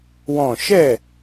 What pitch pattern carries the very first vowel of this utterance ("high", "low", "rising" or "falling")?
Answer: falling